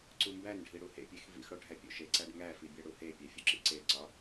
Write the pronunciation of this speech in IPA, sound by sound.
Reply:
ǀ u m b æ n ɖʱ i ɽ u h ḛ pʲ e x v ḭ x ɽ o ɖʱ æ pʲ o̰ ʃ e ǀ æ ɖ ŋ æ f i bʲ æ ɽ u h e pʲ æ fʲ u ǁ ḭ ǀ e ǀ ɒ

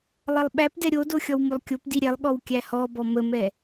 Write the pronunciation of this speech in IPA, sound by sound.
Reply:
lˠ ɐ lˠ ɓ æ p d ɛ ɾʲ o d o xʲ ɔ w m o lˠ kʲ o p d i ɾʲ ɛ lˠ ɠ ɔ w kʲ æ h ɔ b ɔ m ə m ɛ

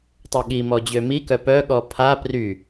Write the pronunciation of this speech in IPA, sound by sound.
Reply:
tˤ ø ɠ i m ɔ d͡ʑ ø m i k œ p œ ɠ ɔ pʰ a p r y

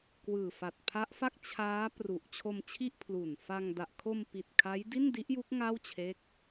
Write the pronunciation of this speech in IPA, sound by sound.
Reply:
k w ɯː˨˩ f a˨˩ t̚ pʰ a˦˥ ʔ f a˥˩ k̚ t͡ɕʰ aː˦˥ p r u˨˩ ʔ t͡ɕʰ o˧ m t͡ɕʰ i˥˩ ʔ pʰ l u˨˩ n f a˧ ŋ d a˨˩ ʔ kʰ o˧ m p i˨˩ t̚ kʰ a˦˥ j d i˥˩ n d i˦˥ ʔ j u˦˥ k̚ ŋ a˥˩ w t͡ɕʰ e˦˥ k̚

